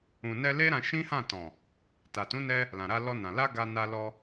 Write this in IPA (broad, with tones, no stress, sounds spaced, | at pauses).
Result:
ũ˨ n ɛ˧ l e˦ ɾ ã˧ ʃ ĩ˦ h ã˦˨ t ɔ̃˨ | t a˨ t ũ˨˦ n ɛ˧ | l ã˨ ɾ a˧ l ɔ˧ n ã˨ l a˧ ɡ a˧ n a˧ l ɔ˧